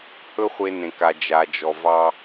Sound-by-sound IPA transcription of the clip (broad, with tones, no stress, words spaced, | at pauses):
hɵ˦ χʷe˦nẽ˨ka˨ d͡ʒa˨d͡ʒɔ˨ vɑ˦